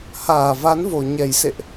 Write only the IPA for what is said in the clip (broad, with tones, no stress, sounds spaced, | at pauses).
h aː˧˩ v a˨˦ n v o˨˩ ɲ ɛ˧˩ j s ḛ˧˨ ʔ